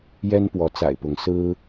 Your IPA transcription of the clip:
jɛ˦npwɔ˨˦t͡sa̰˨˩ɪ̯pʊ˨˦ŋ sɹ̩˦

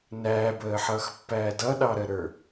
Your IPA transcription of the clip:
næːbəːħʌːxpːæː dʌɗɑɾəɾə˞

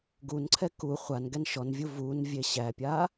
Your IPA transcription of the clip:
ɡunǀʰɛ ku χʷan ɡɛnʃɔnvʲu vun vʲeɕæpʲa

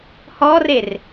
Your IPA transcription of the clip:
hɔrer

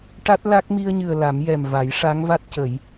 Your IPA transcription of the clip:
ʈa˦˥t̚la˦˥k̚ mi˧ə̯ɲɨ˨˩ə̯ la˨˩˦mjɛ˨˩m va˨˩˦jʂa˧˥ŋva˦˥t̚cə˨˩˦j

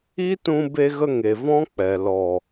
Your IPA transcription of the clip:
i˦tũ˧ be˧ɣə˧ ŋe˨vɔ̃˦k͡pɛ˨ lɔ˨

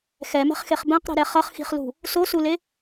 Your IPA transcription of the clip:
xɛmɛ̤χxeχ bɛ̃qɾi̤ɾɛ χʌχxi̤χlṳ | sosule

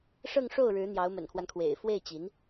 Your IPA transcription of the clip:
ʂɤ˥˧ŋʂo˥˩ʊ̯ɻɻ̩˧˥ n̪jɑ˧˥ʊ̯mə̰˨˩nkʰwa˦nkʰwḛ˨˩ɪ̯ fwe˥˩ɪ̯t͡ɕi˧˥n

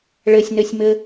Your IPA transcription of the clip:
ɭɘsʲnɘsʲmɘ

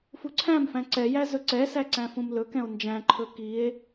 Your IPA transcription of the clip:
fuǀʰæ̃mfæ̃ ǀɛjæ zɵǀɛsæ ǀæ̃fũmlɵkɛ̃o̯ nd͡ʒæ̃ǃʰɵ kie̯

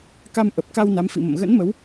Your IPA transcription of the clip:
ka˧mʔə˨˩p̚ka˧w na˨˦mfḭ˧˨mə̰˧˨m ɣə̰˧˥nmə˨˦w

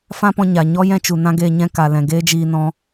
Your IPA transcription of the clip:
fã˦pɔ̃˧ɲa˨ɲɔ˦ jɛ̃˦t͡ʃu˨ nã˦ɡeː˧ ɲɛ̃˧ ka˨lɛ̃˨ ɡeː˦d͡ʒiː˧nɔ̃˧

